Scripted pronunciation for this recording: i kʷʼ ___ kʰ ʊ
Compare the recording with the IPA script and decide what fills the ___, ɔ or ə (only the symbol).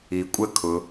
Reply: ə